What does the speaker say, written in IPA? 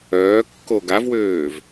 œː kː o ɡ a v w øː v

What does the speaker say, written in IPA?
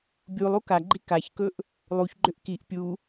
bʲ u lˠ u k a ɡ͡ǃ i k a ç k ɵ ʔ | lˠ u ç ɡ͡ǃ ʏ ʔ k i ʔ pʲ u

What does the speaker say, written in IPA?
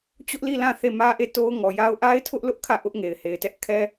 t͡ɕ ʊ˦ ʔ l i˦˨ l ã˦˨ θ e˦˨ m ä˦ ʔ e˦˨ t o˦ ʊ̯ ŋ ɔ˨ j a˦ ʊ̯ ʔ a˦ ɪ̯ tʰ ʊ˦ ʔ l ʊ˦ ʔ kʰ ä˦˨ ʔ ʊ˦ ʔ ŋ e˨ ɪ̯ h e˨ ɪ̯ t ɛ˦ ʔ kʰ ɛ˦

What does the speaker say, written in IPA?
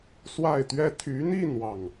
s w a˥˩ ɪ̯ t̪ ɥ ɛ˥ t̪ʰ y˧˥ n̪ i˥˧ n̪ w ɑ˥˩ ŋ

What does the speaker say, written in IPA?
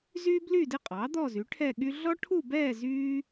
z yː˥ b l y˥˧ d ɪ˥˧ qʼ ɑ˩˥ d̪ ɔ˥˧ z y˩˥ ʈʰ ɛ˥˧ ɠ y˥ ɮ ɔ˥ ʈʰ u˥˧ b ɛː˥˧ z yː˥

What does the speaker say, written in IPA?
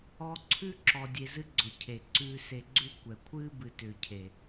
ɔ˧ ǀʰ ʉ˦ ǁ ɔ˧ dʲ e˧ z ɨ˦ ɡ͡ǀ ʊ˨ cʰ e˨ ǀ ʉː˧ s e˧ ɡ͡ǀ ʉ˦ kʷ ɛ˨ kʷʰ ɨː˦ b ɨ˨ t ʏː˨ cʰ e˨

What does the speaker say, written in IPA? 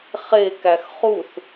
χ e k æ x χ u θ

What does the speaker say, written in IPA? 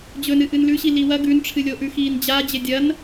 d͡ʑ ɵ n ɨ ʔ ɨ n l ʉ ɕ i l i w ɐ ɡ ʉ n ʈ͡ʂʰ ɨ lʲ o ʔ ʉ x iː n d͡ʑ a d͡ʑ e dʲ ɐ n

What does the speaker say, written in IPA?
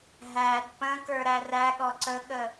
ɦ æ d p ə̃ k ə˞ ɾ æ r æ ɠ ɔ ǀ ə ɠ ə

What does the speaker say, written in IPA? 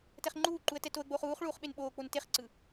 t ɛ χ ŋ͡ǃ uː ǃ u ə̯ t ɛ t o ə̯ ɡ͡b oː χ uː χ ɭ uː χ ɓ e n ɓ oː k͡p o n t e χ ǀ ɯ

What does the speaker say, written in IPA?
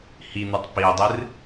h i n̪ ɨ tˤ p i dˤ ɨ r

